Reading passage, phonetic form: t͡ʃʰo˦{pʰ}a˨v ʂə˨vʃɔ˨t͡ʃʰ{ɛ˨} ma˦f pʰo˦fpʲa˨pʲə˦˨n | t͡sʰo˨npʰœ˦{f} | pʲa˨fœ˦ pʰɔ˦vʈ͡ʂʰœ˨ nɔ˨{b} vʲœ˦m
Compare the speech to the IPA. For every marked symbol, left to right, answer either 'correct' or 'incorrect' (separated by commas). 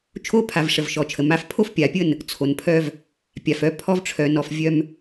correct, incorrect, incorrect, incorrect